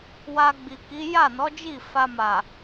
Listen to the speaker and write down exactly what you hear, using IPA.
w a˧ ɡ͡b i˨ k i˨˦ j a˦˨ n ɔ˨˦ d͡ʒ i˦˨ f a˧ m a˨

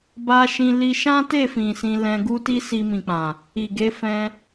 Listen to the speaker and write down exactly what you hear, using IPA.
b a˧ ʃ ĩ˧ l i˧ ʃ ã˦ t e˦˨ f ĩ˨ s ĩ˧ l ɛ̃˧ ɡ u˦ t i˦ s i˧ m ĩ˨ k͡p ã˨ | i˨ ɡ e˨˦ f ɛ̃˧

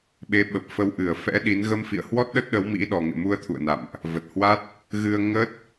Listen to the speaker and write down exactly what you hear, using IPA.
ɓ e˨˦ ɓ ə˨˩ p̚ f ə˧ w ʔ ɨ˧˩ ə̯ f ɛ̰˧˥ ɗ i˨˦ n ɣ ə˧ m f ḭ˧˨ ə̯ h w ɔ˦˥ t̚ ɗ ə˦˥ t̚ ɗ ə˨˦ w m ḭ˧˥ ɗ ɔ˨˩ ŋ ḛ˧˨ m u˧ ə̯ t̪ʰ ṵ˧˨ ə̯ n a̰˧˨ m ʔ | v ə˨˩ t̚ h w a˦˥ t̚ | ɣ ɨ˧ ə̯ ŋ ə˦˥ t̚

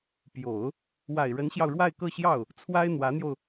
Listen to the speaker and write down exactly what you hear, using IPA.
p j o˨˩˦ ʊ̯ | w a˨˩ ɪ̯ ɻ ə˧˥ n ɕ j ɑ˧ ʊ̯ ɻ w a˥˧ ɪ̯ k ɤ˥˧ ɕ j ɑ˥˩ ʊ̯ | t͡sʰ w a˥ ɪ̯ n̪ w ä˧˥ n̪ j o˧ ʊ̯

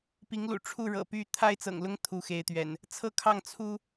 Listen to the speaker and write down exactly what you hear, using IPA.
p i˨˦ ŋ l ṵ˨˩ ʈ͡ʂʰ u˥˨ ɻ ɤ̰˨˩ p y˥˨ t̪ʰ a˦ ɪ̯ t͡s ɤ̰˨˩ ŋ l ʊ˦ ŋ t̪ʰ u˨˦ x e˨˦ ɪ̯ t̪ ɥ ɛ̰˨˩ n | t͡sʰ ɤ˥˨ kʰ ɑ˥˨ ŋ t͡sʰ u˦

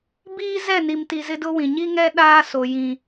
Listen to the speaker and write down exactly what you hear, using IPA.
b iː˦ z ɛ˦˨ n i˨ m t i˨ z ɪ˦ d ʊ˦ w ĩ˨ ɲ i˦ ŋ ɛ˦ ɗ aː˦ s o˨ j ĩ˨

